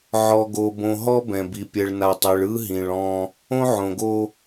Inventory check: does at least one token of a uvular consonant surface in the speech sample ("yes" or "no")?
no